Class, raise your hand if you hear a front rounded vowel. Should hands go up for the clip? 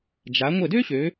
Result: yes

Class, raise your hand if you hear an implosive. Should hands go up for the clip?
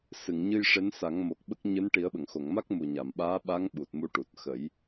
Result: yes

